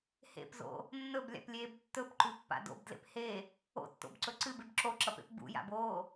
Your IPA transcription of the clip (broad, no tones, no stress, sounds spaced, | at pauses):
h ḛ p z o̰ | nː ɵ b lʲ a̰ p lʲ eː b tː ɵ p ǃ ʉ pː a̰ d o̰ b d l ḛ p h e | o̰ tː o̰ b ǀ ɵ ǀ ɨ b e b ǁ o ǁ ɐ p ḛ p b ṵ j a̰ b oː